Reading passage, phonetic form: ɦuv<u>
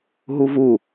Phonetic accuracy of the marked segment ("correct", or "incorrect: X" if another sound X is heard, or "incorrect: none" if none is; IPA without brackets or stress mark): correct